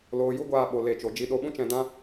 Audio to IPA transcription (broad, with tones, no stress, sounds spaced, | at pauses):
l oː˧ j u˦ ɡʷ aː˧ ɓ o˨ l e˦˨ t͡ʃ o˧ d͡ʒ i˧ ɗ o˧ ɓ ũ˦ t͡ʃ ɛ̃˧ d ã˦